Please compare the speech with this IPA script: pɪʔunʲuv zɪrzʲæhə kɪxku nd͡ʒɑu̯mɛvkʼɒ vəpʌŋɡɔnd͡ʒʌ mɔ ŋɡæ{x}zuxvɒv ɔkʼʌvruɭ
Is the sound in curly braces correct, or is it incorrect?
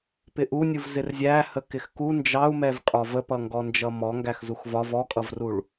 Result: correct